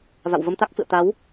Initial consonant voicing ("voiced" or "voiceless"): voiced